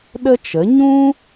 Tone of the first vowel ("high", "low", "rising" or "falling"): high